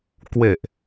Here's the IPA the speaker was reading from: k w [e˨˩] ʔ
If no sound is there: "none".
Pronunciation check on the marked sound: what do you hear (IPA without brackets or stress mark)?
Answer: e˨˩